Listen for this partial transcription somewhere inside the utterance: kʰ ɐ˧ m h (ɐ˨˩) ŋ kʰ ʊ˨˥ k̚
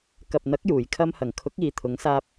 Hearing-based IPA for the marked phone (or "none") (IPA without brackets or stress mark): ɐ˨˩